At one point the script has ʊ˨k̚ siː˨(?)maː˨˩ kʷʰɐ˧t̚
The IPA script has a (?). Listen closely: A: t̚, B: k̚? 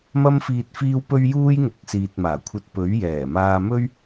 A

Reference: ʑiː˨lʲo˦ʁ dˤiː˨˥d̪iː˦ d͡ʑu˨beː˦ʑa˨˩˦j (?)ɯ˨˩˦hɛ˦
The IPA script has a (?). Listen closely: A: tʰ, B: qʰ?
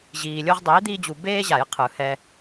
B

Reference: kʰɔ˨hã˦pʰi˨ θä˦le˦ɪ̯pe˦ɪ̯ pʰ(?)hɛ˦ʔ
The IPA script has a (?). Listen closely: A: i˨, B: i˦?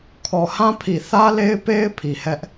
A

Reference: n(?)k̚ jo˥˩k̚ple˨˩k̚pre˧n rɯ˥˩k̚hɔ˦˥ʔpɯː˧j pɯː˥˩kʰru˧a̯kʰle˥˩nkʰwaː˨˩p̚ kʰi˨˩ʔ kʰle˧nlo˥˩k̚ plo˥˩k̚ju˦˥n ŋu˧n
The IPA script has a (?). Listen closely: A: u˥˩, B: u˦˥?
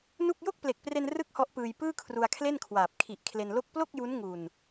A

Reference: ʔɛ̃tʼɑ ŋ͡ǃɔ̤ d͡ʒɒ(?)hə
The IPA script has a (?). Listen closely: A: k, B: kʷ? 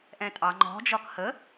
A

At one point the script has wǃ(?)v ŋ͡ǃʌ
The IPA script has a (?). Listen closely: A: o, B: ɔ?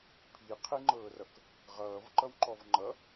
B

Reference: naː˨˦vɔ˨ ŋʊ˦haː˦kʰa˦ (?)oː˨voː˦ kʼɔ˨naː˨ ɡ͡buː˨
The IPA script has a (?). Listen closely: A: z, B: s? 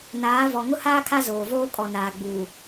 A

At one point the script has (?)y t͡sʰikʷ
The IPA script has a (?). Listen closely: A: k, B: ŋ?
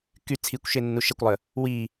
A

